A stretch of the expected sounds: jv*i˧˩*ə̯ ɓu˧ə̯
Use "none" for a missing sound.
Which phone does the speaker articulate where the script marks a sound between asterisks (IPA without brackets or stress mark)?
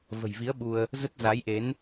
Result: i˨˦